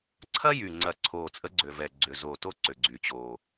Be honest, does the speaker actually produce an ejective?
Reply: yes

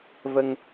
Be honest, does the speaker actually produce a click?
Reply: no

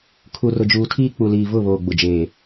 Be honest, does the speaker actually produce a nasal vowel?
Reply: no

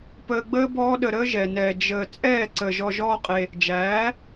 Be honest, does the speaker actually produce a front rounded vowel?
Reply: no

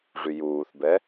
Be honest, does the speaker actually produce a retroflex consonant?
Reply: yes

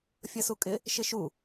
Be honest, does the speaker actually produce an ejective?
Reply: yes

